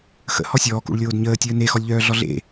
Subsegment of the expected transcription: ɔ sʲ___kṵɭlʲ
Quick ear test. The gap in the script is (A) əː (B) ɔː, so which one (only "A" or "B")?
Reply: B